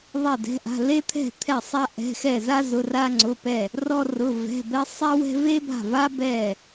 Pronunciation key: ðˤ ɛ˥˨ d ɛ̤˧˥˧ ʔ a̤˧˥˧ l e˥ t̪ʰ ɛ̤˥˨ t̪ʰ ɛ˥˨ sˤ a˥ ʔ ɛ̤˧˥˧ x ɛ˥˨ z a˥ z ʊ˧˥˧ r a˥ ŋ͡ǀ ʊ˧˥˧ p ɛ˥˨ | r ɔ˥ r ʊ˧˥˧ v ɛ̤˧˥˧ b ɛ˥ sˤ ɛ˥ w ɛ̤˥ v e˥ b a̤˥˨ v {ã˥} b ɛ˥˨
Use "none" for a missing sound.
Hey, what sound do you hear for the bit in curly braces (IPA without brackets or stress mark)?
a˥